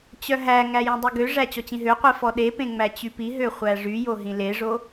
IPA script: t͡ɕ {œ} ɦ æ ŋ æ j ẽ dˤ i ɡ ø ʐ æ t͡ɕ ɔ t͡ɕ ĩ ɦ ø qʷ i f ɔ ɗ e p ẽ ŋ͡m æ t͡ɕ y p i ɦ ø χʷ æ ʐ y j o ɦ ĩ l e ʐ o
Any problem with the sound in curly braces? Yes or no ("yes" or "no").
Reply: no